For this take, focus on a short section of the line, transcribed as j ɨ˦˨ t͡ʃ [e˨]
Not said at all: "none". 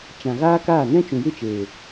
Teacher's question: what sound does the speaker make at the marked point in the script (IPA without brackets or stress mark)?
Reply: eː˨